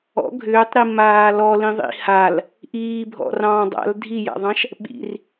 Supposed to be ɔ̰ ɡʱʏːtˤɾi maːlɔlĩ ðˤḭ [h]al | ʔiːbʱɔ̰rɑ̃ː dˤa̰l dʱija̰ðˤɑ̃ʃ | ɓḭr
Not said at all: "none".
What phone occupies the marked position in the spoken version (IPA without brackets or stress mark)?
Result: h